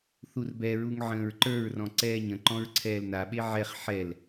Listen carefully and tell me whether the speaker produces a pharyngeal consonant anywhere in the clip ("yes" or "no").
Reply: yes